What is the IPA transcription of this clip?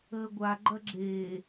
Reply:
əː ɡʷ a ɡ͡ǃ ɐ ɡ͡ǁ eː

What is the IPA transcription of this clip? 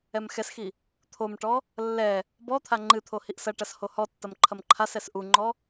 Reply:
ɛ m x ɛ s x i | t̪ʰ o m ʈ ɔ | lː ɛ | b ɔ t̪ʰ a ŋ͡ǃ ɨ t̪ʰ o h i ʔ s ɐ ʈ ɐ s h o h ɔ tː ɐ m ǃʰ ɐ m ǃʰ a s ɛ s ʔ u ŋ͡ǃ ɔ

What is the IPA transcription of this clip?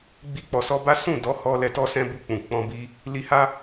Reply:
ɡ͡b i˧ k͡p ɔ˨ s ɔ˧ b a˦ s ũ˦˨ d ɔ˨˦ h ɔ˧ l ɛ˧ t ɔ˦ s ɛ̃˦ b u˧ k͡p ũ˨ k͡p ɔ̃˧ b i˧ | l i˧ h a˦

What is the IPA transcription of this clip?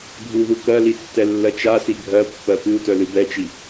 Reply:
ɡʱ u ð u k ɜ l i tː ɛ lː ɜ t͡ʃ a s i ɡʱ ɜ pː ɜ p ɨ u̯ t œ l ɨ b ɛ t͡ʃ i

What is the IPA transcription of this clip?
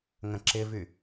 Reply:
ŋ ə̃ ǁ ɪ v y

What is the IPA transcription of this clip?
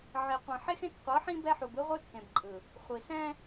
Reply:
ʕ i˨ qʷ ĩ˨ ħ e˦ x ẽ˦ t qʷ ɤ˨˦ ħ ĩ˦ b ɛ˦ ħ u˨ b ɯ˦ ʁʷ ɯ˦ tː ẽ˨ b ǃʼ ɯ˨ | χʷ i˨ s ɛ̃˦

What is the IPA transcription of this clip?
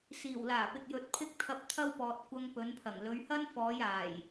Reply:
s iː˨˩ w l aː˨˩ p ɪ˨ k̚ j ɵ˨ t̚ pʰ ɪ˥ k̚ t̪ʰ ɐ˧ p̚ t̪ʰ ɐ˥ w p ɔː˨ t̚ kʷ ɐ˧ ŋ p ɵ˨˧ n pʰ ɐ˨˩ ŋ l ɵ˨˧ ɥ h ɐ˥ n f ɔː˨˧ j aː˨˩ j

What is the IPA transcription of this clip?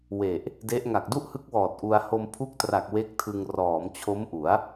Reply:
w e˨˩ ʔ | d e˦˥ ʔ ŋ a˨˩ k̚ d u˥˩ ʔ h ɯ˦˥ k̚ w ɔː˨˩ t̚ ʔ u˧ a̯ h o˧ m pʰ u˦˥ k̚ t r a˨˩ k̚ w e˦˥ k̚ tʰ ɯ˧ ŋ r ɔː˩˦ m t͡ɕʰ o˦˥ m ʔ u˩˦ a̯

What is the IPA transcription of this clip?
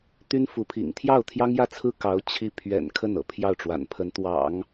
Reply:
t̪ y˥ n f u˧˥ pʰ ḭ˨˩ ŋ t̪ʰ j ɑ˥˩ ʊ̯ t̪ʰ j ɑ˥ ŋ j ä˥˩ t͡sʰ ɹ̩˥ k ɑ˧˥ ʊ̯ t͡ɕʰ i˥˩ pʰ ɥ ɛ̰˨˩ n kʰ ə˥˩ n ɤ̰˨˩ pʰ j ɑ˥˩ ʊ̯ ʈ͡ʂ w a̰˨˩ n pʰ ə˧˥ n t̪ w ɑ̰˨˩˦ ŋ

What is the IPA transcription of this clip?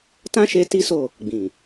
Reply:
t ã˦ ʃ e˧ t i˦ s o˦˨ | ɡ͡b ĩ˨

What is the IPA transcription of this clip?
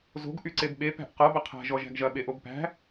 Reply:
z o̤ ɡ ʔ y ǀ e b ɓ e p æ̤ ʔ q ʌ b ɐ qʰ æ̤ ʒ ɔ ʒ æ̤ ɡ ʒ ɐ ɓ e ʔ o b p æ̤

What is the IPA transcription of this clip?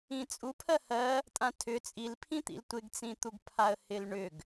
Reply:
ĩ t͡sʼ u pʰ ɜ h ɜ | tʼ ã tʰ ʏ t͡sʼ i l pʰ ĩ t̪ ḭ l tʷ ɪ ɡ t͡s ĩ t̪ u ɡ pʰ a ə̯ h ɪ l ɳ ʏ ɡ

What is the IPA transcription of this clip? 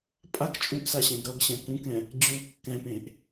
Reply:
pʼ a k t͡ʃʼ u ʔ s a ɕ ɛ̃ ɡ ɾ ʌ ɡ ɕ ɛ̃ k ũ k ɛ̃ | d͡ʑ u kː ɛ̃ p ẽ ʔ

